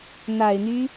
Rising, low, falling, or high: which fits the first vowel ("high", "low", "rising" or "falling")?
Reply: low